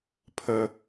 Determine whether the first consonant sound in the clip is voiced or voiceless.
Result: voiceless